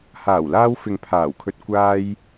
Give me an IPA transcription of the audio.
h aː˨˩ w l aː˧ w f ɪ˨ ŋ pʰ aː˨˩ w kʰ ɵ˧ t̚ kʷ aː˧ j

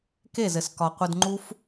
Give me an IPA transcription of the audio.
k e˦˨ z ɘ˨ s k ɒ˨ qʷ ɘ˧ d ŋ͡ǃ u˦ f

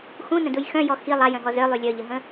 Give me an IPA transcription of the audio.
x ũ n ə̃ d u j x œ̃ j ɔ x i lˠ a j œ̃ ɦ ɔ z œ lˠ y lʲ œ ʎ ə ɦ ə̃

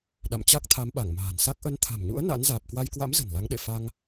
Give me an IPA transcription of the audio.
ɗ a̰˧˨ m t͡ɕ a˦˥ k̚ t̪ʰ a˨˦ m ɓ a˧˩ ŋ m a̤ː˨˩ n s a˦˥ k̚ ʔ ə˨˦ n t̪ʰ a̤˨˩ m ɲ ṵ˧˥ ə̯ n a̰˧˥ n z aː˨˩ p̚ k w a˧ j k w a̰˧˥ m z ə̤˨˩ n l a˨˦ ŋ ɗ ḛ˧˨ f a˧ ŋ

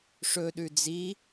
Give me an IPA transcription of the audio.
ʂ ɵ ɗ ʉ d͡z i

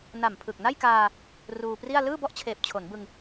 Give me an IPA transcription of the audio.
n a˨˩ m pʰ ɯ˨˩ k̚ n a˥˩ j k aː˧ | r uː˧ p r i˥˩ a̯ l ɯː˥˩ b ɔ˥˩ ʔ t͡ɕʰ eː˨˩ p̚ t͡ɕʰ o˩˦ n b ɯ˧ ŋ

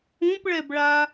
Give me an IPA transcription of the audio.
ũ p ɭ ɛ b ɭ a

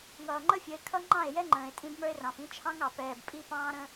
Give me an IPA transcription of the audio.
ŋ ʌː˨ ŋ͡ǃ ə˦ fʲ ə˨˦ e̯ kʰ ʌ˦ ŋ͡ǃ ɑ̃˦˨ e̯ j ɛ˦ ŋ͡ǃ ə̃ː˨ e̯ tʼ ĩ˦ b m ə˞˦ e̯ r ɑ̃˨ f ĩ˦ t͡ʃʰ ɑ̃˦ ŋ ɑ˨ p ɛː˨ b pʼ i˦ p ɑ̃ː˦ ɾ ə̃˦

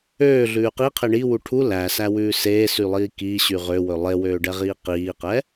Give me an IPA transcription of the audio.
øː ɮ ʉː q i qʰ e ɳ i w u ʈʰ u l æ s æ w ʉː s eː s y lˠ iː k iː ɕ y ʁ ø w ɵ lˠ e w øː ɖ ɛ ʁ iː q iː q ɛ

